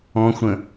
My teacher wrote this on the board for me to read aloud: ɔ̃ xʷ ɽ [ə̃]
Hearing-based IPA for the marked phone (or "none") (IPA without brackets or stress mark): ə̃